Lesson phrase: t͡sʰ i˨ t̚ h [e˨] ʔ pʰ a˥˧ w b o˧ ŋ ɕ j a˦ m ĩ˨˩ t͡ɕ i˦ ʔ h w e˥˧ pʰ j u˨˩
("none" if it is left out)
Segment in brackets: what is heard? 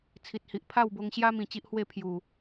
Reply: i˨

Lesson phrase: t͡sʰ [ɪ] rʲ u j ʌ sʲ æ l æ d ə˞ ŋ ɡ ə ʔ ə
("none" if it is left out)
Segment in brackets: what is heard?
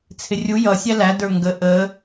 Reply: ɪ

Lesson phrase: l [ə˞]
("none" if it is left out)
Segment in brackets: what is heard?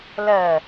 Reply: ɜ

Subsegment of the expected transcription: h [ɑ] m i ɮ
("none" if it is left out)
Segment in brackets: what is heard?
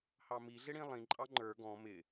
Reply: ɑ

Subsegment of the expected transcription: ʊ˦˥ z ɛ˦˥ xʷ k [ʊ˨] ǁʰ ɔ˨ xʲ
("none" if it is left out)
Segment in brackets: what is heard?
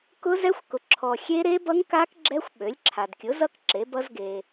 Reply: ʊ˨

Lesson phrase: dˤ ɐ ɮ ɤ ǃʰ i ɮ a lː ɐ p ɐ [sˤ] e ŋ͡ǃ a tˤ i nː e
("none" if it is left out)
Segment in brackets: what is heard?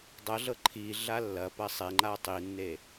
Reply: sˤ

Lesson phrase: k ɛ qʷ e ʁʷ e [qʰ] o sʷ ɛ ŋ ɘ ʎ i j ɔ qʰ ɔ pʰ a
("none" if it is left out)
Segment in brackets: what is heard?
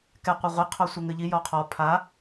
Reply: qʰ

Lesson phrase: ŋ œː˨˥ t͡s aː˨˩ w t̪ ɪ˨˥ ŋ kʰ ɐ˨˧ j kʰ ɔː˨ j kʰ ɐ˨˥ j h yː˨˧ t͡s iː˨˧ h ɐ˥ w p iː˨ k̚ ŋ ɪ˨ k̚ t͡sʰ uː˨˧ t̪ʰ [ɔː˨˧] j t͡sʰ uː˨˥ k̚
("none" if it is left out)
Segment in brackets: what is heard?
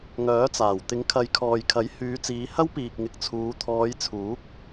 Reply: ɔː˨˧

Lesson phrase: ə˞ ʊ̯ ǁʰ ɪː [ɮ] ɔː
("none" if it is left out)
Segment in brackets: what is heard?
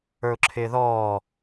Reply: ð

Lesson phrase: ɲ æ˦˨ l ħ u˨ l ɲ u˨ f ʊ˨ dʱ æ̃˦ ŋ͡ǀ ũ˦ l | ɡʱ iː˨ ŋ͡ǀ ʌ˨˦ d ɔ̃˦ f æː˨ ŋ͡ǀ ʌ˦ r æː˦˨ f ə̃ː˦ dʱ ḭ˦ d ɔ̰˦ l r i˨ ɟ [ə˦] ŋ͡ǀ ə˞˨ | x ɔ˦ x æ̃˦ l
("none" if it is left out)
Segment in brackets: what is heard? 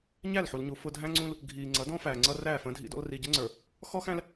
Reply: ə˦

